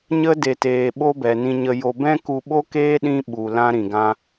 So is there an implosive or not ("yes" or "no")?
yes